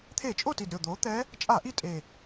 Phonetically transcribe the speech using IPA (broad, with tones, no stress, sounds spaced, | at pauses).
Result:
t̪ʰ e˧˩˧ t͡ʃʼ o˥˨ t i˨˩ d ɾʲ o˨˩ d̪ oː˩˥ t̪ ɛ˧˥ | t͡ʃʼ aː˧˩˧ ʔ i˧˥ tʼ e˨˩